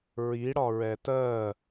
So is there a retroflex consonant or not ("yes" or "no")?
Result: yes